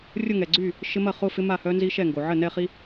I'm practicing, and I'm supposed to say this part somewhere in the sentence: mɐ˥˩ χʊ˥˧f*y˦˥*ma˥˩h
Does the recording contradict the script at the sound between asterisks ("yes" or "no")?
yes